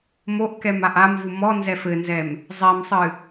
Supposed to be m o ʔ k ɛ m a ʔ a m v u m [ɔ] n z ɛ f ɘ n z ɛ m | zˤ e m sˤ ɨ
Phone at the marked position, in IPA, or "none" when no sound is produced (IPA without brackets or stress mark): ɔ